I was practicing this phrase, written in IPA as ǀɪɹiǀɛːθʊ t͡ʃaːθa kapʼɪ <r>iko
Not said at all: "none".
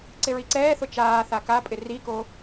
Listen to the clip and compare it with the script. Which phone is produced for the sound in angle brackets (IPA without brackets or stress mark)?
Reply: r